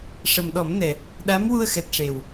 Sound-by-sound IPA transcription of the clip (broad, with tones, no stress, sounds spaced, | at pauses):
ʂ ə˨˩ m ɗ ɔ˨˩˦ m n ɛ˨˩ | ɗ a˧˥ m w u˧ ə̯ x ɛ˨˩ t̚ ʂ e˨˩ w